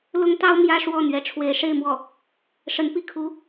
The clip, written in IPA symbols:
l ʊ˥ ŋ t̪ ɑ˥ ʊ̯ m j ä˥ ʂ w ɔ˥˩ n̪ ɥ ɛ˧˥ ʈ͡ʂʰ w e˧˥ ɪ̯ ʂ e˥˧ ɪ̯ m w ɔ˥˩ | ʂ ə˧˥ n p i˥˩ kʰ u˧˥

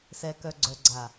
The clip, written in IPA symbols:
s ɛ˨ k œ˨ ɡ͡ǀ œ˨ ɡ͡ǀ a˨

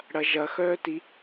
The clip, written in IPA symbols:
ɽ ɐ ʒ ɐ x œː t i

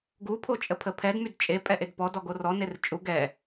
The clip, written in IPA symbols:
ɡ u pʰ o t͡ʃʼ ə pʰ ə pʰ ɛ d m y d t͡ʃʼ e pʼ ɛ ʔ e d p ɔ d ɔ ɡ o r ɔ n e r t͡ʃʼ u ɡ ɛ

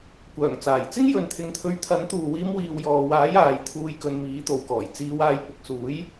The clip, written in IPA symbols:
kʷ œː˨˩ ŋ t͡s aː˨˩ j t͡s ɪ˥ ŋ j ɵ˨˧ n t̪ʰ ɪ˧ ŋ t̪ʰ ɵ˧ ɥ t̪ʰ ɐ˨˥ n t̪ uː˨ w iː˧ m w iː˨ w j ɔː˨ w aː˨˥ j aː˨ j t̪ʰ uː˧ j k ɵ˧ n m iː˨˥ t̪ o˨ w k ɔː˨˩ j t͡s iː˨˧ w aː˨˧ j p ʊ˨ k̚ s uː˨˥ j

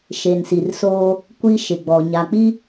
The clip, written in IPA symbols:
ʃ e˨ n s i˨ r s oː˦ | kʷ i˦ ʃ ɪ˨ ɡ͡b ɔ˨ ɲ a˨ k͡p i˦

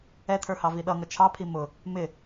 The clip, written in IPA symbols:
ɛ tʰ ə˞ h ɑ v i ɗ ʌ ŋ ʌ t͡ʃʰ ɑ pʰ i m ʊ | m ɪ

